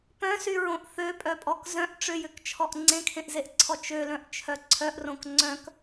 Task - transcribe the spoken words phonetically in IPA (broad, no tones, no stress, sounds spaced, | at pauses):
p œ̃ s y ɹ õ ʔ θ ø pʼ œ pʼ ɔ k z œ̃ ʔ ʈ͡ʂ ʏ j ʏ k t͡ʃʰ ɔ ʔ ŋ͡ǀ ẽ kʰ ẽ ʔ z e ʔ ǀʰ ɔ t͡ʃ ø l œ̃ ʔ t͡ʃʰ œ ǀʰ œ ʔ r õ k ŋ͡ǀ œ̃ k